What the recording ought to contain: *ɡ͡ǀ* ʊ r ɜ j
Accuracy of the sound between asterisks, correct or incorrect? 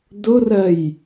incorrect